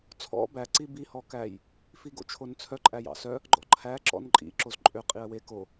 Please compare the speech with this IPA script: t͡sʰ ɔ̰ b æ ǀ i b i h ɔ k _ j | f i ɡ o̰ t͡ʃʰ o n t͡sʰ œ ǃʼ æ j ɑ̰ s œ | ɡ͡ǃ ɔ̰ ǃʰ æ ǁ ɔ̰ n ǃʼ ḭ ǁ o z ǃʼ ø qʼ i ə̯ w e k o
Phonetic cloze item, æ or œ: æ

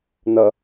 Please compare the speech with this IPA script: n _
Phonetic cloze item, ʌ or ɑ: ʌ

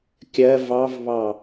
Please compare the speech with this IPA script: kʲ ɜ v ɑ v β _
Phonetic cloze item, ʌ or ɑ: ɑ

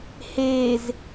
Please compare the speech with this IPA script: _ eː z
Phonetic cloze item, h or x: h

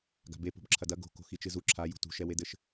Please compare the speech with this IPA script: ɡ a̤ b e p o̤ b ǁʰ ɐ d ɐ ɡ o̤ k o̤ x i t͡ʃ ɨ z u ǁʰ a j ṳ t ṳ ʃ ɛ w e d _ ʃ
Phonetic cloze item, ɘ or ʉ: ɘ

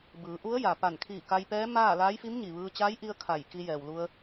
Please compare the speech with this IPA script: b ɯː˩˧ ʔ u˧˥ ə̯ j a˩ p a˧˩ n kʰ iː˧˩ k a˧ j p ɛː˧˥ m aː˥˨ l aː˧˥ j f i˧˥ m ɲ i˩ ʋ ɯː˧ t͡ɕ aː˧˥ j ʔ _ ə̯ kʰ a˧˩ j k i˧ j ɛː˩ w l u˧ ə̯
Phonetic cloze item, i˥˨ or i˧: i˧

